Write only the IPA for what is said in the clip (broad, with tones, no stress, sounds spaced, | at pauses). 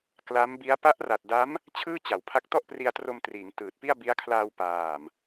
k l a˦˥ m b i˦˥ a̯ p a˦˥ ʔ r a˨˩ t̚ d a˦˥ m | t͡ɕʰ ɯː˥˩ t͡ɕ a˩˦ w pʰ a˦˥ k̚ t ɔ˥˩ ʔ p r i˧ a̯ t r o˧ m t r iː˩˦ ŋ t ɯː˨˩ t̚ p i˥˩ a̯ b i˦˥ a̯ kʰ l aː˧ w p aː˨˩ m